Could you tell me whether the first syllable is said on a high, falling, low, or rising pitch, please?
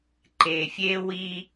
low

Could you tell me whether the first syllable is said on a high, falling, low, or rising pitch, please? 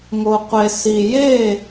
low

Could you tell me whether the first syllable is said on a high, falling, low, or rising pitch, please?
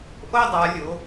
high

